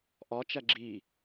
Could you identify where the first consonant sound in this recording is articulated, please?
glottal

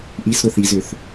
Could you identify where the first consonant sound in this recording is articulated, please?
glottal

